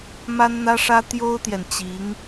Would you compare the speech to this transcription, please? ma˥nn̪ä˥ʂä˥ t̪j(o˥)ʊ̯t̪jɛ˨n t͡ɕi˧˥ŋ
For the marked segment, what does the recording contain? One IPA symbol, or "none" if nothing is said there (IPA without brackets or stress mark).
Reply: o˥